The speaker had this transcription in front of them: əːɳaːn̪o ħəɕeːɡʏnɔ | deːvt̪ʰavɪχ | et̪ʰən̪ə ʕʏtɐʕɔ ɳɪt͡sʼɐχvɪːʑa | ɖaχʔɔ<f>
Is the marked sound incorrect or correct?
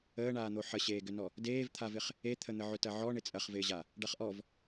incorrect